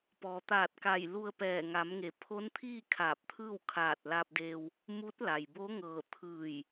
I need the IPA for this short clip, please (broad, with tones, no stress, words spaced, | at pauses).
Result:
pɔː˩t̪aː˧˩t̚ka˧˩j lu˧ə̯pɛː˧˩ŋa˩˧mŋe˩˧ pʰo˧˥nt̪ʰiː˥˨ kʰaː˧˩p̚t̪ʰɯː˥˨w kʰaː˧˩t̚la˧p̚de˧w | mu˧˥t̚la˩jbo˧˥ŋɤː˧˩ t̪ʰɯː˧˩j